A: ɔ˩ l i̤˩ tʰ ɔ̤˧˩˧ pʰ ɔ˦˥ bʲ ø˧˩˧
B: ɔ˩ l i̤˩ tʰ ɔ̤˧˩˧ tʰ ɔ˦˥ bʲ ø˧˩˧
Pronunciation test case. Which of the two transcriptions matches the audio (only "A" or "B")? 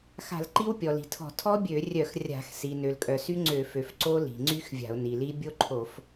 B